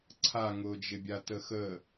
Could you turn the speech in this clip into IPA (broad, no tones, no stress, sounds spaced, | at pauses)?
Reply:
ǀʰ a ŋ ʊː d͡ʒ ɪ bʲ a t ə x ə